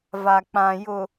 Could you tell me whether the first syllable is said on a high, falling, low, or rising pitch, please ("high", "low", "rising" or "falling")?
low